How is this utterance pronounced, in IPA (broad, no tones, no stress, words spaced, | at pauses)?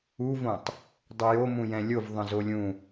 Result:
uvõtˤ | dˤujomũjɛ̃ lʲov ðˤə̃zolʲũ